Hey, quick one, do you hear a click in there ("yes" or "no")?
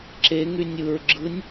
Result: yes